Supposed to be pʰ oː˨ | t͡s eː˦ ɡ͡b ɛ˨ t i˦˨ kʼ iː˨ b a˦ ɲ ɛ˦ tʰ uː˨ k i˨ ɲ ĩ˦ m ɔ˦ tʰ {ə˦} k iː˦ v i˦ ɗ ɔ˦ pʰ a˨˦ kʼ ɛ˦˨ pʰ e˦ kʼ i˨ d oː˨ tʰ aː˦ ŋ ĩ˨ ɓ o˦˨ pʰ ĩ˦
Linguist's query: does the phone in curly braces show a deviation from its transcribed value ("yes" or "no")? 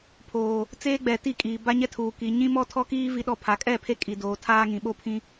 yes